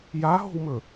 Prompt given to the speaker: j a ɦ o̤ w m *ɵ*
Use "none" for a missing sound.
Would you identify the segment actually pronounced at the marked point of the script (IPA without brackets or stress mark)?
ɵ